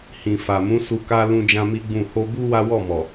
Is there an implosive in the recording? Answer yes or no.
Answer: no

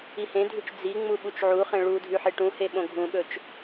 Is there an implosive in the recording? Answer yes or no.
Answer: yes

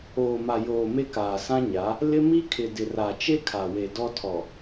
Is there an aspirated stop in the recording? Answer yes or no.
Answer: yes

